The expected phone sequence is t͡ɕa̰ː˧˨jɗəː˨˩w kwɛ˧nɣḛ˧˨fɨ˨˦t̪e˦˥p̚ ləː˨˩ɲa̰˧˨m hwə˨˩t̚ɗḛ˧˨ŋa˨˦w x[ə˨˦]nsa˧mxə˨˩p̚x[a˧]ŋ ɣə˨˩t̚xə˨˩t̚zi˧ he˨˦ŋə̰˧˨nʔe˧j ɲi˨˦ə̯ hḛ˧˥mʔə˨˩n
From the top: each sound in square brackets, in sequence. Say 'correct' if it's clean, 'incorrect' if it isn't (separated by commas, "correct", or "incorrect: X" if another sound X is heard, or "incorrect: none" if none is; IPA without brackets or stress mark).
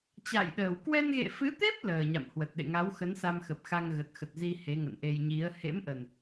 correct, correct